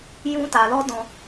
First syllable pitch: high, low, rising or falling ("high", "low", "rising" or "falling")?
high